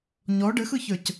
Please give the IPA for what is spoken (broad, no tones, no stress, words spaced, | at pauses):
ɲɔ ɖɘxɯçə˞c